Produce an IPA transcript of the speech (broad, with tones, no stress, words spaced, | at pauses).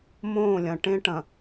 mõː˦˨lʲɐ̃˨ ʈẽ˦ʈɐ̃˨